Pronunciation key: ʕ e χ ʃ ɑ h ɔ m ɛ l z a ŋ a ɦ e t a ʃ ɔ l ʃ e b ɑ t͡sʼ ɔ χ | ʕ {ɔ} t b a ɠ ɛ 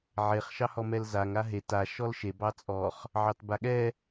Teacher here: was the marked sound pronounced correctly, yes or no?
no